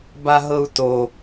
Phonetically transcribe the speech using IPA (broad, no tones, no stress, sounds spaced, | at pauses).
b a ɦ ɤ u̯ t o